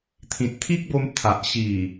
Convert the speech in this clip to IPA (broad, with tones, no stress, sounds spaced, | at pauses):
t̪ʰ ĩ˨ t̚ t̪ʰ i˦ k̚ b o˧ m t̪ʰ a˨ ʔ ɕ i˨˩